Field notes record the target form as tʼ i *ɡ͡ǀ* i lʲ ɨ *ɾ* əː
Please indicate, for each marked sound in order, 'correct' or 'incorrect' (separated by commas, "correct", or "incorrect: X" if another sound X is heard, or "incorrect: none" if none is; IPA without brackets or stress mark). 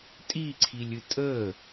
incorrect: ǀʰ, incorrect: tʼ